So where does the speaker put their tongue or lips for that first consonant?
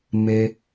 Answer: lips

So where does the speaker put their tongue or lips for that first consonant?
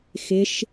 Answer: velum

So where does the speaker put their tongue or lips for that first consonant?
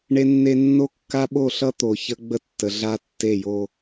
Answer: retroflex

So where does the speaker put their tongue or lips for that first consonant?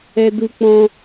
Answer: tongue tip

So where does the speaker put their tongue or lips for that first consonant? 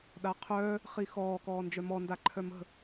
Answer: tongue tip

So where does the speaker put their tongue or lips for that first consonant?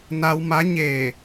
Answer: tongue tip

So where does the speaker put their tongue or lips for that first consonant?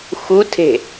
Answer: velum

